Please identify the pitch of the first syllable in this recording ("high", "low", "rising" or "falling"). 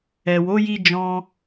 low